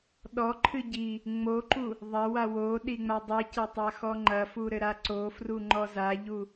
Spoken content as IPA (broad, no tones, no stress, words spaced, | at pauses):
ɗɔǃʰɨ ɟi | ŋ͡moǃu | ðˤɐwa wo ɗiŋ͡madˤicɐ tˤaxɔŋ͡ǃɐfu ɾɘɾaǀofru ŋ͡ǃɔzaʎu